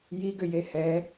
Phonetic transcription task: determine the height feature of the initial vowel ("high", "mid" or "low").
high